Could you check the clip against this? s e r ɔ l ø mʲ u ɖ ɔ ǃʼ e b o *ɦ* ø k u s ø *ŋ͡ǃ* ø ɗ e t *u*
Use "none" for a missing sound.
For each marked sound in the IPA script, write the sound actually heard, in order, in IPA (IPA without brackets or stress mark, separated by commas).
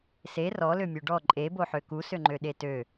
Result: ħ, ŋ͡ǃ, ø